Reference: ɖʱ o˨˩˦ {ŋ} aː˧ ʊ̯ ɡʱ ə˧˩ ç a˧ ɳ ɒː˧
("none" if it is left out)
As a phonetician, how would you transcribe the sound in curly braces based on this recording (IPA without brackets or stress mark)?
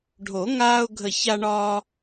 ŋ